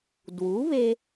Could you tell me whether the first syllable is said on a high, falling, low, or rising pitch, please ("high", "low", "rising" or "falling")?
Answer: rising